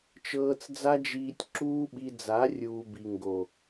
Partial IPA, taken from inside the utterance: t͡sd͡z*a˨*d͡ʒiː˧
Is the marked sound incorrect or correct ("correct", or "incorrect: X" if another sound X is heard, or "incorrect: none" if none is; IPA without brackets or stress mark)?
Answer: incorrect: a˦